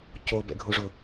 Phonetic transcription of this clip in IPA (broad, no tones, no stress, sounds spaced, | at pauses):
c o b ɛ̰ ɡʱ u ʐ ʊ